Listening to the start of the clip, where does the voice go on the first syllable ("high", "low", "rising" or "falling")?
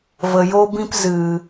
low